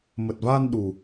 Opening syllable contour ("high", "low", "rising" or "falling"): low